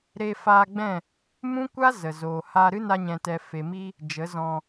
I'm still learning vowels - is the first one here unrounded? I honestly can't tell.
yes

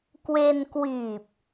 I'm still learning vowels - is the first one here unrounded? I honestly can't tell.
yes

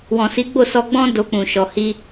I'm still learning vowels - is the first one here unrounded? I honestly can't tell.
no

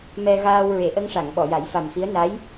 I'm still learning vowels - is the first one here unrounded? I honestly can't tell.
yes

